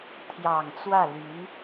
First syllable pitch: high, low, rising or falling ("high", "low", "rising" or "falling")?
low